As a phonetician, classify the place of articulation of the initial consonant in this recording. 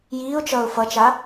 palatal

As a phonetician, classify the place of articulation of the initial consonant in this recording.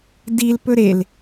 alveolar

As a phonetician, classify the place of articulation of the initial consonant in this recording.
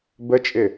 labial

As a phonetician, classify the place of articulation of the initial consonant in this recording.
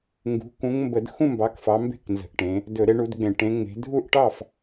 velar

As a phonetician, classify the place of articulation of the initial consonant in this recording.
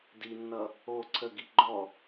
alveolar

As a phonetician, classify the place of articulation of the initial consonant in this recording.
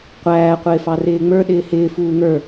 uvular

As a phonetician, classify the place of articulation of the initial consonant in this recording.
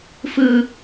labial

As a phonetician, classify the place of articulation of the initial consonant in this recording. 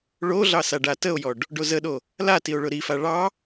retroflex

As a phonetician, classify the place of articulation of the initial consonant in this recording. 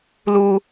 alveolar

